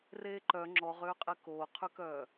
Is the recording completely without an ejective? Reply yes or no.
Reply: no